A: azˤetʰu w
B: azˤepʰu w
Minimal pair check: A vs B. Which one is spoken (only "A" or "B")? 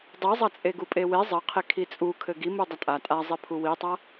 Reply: B